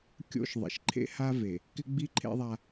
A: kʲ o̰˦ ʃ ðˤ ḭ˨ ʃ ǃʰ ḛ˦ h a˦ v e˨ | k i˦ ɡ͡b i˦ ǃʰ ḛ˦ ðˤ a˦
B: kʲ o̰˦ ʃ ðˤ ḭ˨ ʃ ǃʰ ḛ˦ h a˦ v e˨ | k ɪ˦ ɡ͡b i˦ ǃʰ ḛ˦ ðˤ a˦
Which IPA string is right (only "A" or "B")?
B